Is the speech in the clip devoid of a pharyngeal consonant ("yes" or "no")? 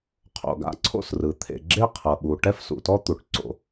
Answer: yes